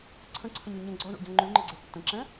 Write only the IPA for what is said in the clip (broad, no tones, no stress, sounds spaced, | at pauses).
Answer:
ǀʰ ə̃ ǀʰ ə̃ ɲ o ɲ ə̃ ɡ͡ǀ ɔ ɳ o̰ ɟ ã ŋ͡ǃ ʉ ŋ͡ǃ ə ɡ͡ǀ ɛ tː ə̃ ǁ ɛ̃